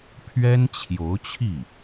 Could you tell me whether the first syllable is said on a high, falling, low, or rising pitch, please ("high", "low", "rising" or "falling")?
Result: high